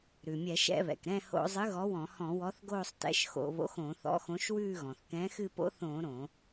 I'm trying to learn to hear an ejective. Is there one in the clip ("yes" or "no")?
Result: no